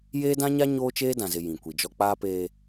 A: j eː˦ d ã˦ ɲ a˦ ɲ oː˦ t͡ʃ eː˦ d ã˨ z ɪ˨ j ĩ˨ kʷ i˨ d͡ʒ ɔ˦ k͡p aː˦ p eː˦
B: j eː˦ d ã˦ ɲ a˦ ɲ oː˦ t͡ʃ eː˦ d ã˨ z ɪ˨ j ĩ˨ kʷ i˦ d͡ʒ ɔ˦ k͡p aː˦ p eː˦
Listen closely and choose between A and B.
A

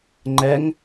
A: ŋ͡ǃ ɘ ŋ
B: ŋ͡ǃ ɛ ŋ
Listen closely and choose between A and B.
B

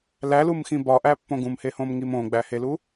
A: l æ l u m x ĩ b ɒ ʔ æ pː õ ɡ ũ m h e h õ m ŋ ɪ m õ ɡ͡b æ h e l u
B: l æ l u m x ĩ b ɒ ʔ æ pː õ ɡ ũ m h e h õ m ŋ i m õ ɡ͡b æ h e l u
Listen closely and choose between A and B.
B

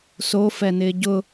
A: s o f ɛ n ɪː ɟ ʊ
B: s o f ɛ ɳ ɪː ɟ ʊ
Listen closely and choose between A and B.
A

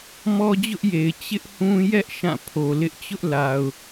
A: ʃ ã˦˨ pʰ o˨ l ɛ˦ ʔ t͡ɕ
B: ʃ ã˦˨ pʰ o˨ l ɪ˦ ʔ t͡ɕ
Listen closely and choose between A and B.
B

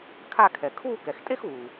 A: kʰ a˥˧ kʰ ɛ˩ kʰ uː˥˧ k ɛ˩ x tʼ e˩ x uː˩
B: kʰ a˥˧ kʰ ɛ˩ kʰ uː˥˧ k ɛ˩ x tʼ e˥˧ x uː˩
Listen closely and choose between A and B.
B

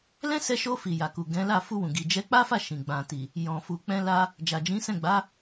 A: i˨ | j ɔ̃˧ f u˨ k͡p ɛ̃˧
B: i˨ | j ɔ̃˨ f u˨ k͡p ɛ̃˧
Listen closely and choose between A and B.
B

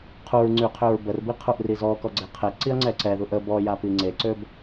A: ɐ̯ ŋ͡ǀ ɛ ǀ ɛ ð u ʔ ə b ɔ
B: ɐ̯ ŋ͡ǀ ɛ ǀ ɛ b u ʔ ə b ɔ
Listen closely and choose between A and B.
A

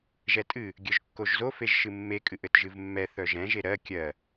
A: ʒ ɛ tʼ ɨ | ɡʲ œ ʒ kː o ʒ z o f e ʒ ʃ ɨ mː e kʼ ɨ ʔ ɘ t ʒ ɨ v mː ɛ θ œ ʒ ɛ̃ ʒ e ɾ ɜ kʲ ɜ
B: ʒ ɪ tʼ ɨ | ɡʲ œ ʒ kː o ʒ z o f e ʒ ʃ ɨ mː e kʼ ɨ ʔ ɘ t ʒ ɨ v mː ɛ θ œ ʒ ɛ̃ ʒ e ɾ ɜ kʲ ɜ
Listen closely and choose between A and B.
A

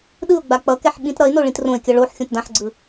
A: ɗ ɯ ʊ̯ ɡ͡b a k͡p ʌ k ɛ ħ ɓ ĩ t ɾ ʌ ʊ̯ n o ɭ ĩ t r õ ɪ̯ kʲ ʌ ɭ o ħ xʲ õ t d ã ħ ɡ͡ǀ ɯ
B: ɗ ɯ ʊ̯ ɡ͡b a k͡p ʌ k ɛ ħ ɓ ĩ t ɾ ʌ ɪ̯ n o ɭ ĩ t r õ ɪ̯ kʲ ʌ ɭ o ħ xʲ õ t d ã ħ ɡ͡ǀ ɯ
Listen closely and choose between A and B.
B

